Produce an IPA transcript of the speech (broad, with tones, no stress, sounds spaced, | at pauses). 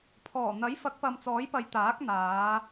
pʰ ɔː˨˩ n̪ ɐ˨˥ j f ɐ˨˥ k̚ p ɐ˨ m t͡s ɔː˨˥ j p ɐ˨˧ j t̪ aː˨˥ k̚ n̪ aː˨˧